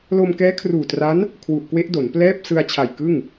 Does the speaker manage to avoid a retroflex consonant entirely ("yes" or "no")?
yes